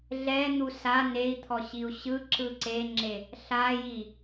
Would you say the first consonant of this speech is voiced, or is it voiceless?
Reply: voiced